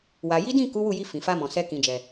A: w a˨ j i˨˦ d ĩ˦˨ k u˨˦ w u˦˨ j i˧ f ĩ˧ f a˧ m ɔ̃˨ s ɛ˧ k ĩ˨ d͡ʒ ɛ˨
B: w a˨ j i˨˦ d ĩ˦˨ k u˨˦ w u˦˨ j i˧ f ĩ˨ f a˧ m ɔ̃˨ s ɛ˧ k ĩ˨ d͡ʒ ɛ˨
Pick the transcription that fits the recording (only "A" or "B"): B